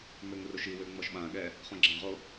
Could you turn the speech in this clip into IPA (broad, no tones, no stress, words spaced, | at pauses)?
møŋroʃiwø ŋ͡mɔʃɓãɠɛ | χõɡ͡ǁãʁo